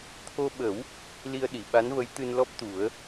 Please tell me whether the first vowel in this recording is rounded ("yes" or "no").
yes